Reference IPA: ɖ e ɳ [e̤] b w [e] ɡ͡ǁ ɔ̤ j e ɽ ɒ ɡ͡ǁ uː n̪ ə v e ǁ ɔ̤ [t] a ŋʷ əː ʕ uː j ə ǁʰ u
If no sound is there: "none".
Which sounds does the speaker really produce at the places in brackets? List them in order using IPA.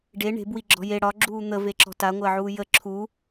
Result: e̤, i, t

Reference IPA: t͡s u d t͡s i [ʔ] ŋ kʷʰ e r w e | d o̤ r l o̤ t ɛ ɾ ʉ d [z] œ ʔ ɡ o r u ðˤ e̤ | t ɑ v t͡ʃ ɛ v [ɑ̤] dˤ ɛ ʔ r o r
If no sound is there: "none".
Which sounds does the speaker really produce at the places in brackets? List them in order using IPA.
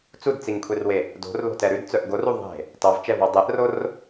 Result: none, t͡s, ɑ

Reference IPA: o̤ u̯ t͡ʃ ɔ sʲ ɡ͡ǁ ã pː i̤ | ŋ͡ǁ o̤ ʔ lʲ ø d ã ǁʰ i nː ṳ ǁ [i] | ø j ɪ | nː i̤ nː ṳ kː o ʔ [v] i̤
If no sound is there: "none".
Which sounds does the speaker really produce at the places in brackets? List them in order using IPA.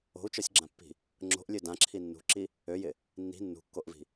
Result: i, v

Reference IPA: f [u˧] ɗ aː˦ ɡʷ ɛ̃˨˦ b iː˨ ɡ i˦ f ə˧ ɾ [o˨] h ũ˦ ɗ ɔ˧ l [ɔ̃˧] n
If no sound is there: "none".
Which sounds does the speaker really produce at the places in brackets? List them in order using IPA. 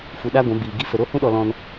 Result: u˧, o˦, ɔ̃˧

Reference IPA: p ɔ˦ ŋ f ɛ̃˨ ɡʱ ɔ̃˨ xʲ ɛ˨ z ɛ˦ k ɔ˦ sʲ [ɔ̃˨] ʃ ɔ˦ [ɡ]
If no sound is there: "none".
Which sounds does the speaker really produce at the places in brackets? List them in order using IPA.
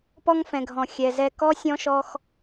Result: ɔ̃˦, x

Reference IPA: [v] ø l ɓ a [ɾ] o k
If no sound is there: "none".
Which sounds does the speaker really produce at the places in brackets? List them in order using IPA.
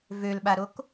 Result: v, ɾ

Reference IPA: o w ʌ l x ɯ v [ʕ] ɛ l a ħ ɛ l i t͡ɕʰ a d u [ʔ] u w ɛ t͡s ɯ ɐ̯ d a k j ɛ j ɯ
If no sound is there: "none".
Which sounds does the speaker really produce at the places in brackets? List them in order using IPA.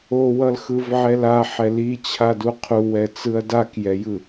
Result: ʕ, qʰ

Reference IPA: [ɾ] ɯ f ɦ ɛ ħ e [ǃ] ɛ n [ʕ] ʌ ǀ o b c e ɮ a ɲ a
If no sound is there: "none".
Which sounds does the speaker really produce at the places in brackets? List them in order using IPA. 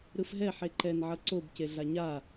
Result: ɾ, ǃ, ʕ

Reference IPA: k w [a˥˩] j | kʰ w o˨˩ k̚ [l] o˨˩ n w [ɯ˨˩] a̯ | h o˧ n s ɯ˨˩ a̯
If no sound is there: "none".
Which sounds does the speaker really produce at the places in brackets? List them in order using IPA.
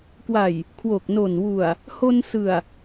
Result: a˨˩, n, u˨˩

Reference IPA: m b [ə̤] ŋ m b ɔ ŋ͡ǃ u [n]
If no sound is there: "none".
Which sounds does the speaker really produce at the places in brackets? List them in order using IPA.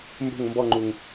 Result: ə̤, ŋ

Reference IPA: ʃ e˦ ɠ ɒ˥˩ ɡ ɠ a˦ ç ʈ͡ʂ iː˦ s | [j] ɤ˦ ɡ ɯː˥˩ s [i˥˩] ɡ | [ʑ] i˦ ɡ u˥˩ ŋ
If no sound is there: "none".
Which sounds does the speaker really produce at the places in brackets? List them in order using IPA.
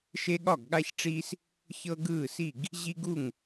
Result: ç, i˥˩, ʑ

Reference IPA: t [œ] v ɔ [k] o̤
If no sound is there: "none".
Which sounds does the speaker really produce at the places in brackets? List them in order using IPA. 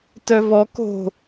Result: œ, k

